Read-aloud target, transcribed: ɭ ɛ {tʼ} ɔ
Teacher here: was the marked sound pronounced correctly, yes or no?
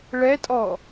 yes